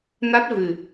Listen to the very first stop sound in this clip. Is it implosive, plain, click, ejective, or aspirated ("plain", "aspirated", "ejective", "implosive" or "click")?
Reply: plain